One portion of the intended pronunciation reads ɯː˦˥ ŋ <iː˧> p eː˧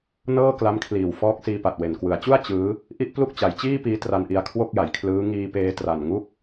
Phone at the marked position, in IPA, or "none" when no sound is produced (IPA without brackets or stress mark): iː˧